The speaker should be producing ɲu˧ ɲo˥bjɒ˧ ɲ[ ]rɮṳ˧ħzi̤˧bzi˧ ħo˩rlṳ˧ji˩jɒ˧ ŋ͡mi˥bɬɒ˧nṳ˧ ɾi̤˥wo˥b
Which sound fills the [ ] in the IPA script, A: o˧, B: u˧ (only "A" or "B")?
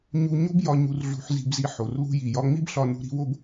B